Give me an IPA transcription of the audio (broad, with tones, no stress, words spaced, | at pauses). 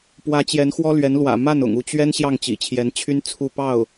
pwä˧˥t͡ɕjɛ˧˥nxwɔ˥ lɥɛ˧˥nlwä̰˨˩ ma˥˩nʊ̰˨˩ŋ u˥˩t͡ɕɥɛ˥n ɕjɑ˥˩ŋt͡ɕḭ˨˩t͡ɕʰjɛ˧˥nt͡ɕʰy˥n t͡sʰu˥˧ pɑ˥˩ʊ̯